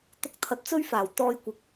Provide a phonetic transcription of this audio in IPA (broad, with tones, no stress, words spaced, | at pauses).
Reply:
t̪ʊ˧k̚t̪ʰɐ˨˥t̚t͡sɵ˥ɥfaː˨˩w t̪ɔː˧jkʷɪ˨k̚